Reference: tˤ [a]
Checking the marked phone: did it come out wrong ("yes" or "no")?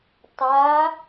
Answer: no